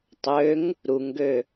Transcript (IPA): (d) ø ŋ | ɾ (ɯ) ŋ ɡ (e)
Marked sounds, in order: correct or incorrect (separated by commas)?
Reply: incorrect, incorrect, incorrect